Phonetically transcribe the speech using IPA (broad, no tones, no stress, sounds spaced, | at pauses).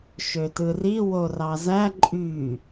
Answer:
ʃ ø t ɯ r i w o r ɑ z æ ǃʼ y